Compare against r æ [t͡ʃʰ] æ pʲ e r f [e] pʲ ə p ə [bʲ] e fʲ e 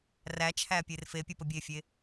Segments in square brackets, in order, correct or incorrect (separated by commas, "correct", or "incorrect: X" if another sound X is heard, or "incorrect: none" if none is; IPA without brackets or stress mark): correct, correct, correct